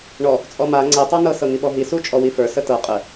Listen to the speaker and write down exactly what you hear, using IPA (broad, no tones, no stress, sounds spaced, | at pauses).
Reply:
ɳ ɔ | t͡sʼ ɔ m a ŋ͡ǀ ɛ tˤ ɑ n ɤ s ɤ ŋ i ɓ ɔ ɦ i s u t͡ʃʼ ɔ w i f ə˞ s ə t ɤ qʼ ə